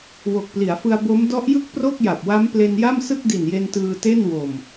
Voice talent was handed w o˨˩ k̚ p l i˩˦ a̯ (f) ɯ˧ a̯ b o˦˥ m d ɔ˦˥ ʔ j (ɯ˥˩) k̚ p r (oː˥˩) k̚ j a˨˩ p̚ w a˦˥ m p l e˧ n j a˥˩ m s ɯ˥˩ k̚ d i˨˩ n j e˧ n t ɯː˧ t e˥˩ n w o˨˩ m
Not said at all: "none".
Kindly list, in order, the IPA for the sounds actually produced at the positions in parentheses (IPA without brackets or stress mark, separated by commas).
f, ɯ˥˩, o˥˩